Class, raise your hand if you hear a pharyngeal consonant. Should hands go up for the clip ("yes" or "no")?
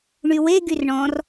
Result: no